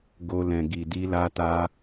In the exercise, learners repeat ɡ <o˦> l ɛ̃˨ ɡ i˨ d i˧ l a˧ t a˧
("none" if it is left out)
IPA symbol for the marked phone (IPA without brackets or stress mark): o˧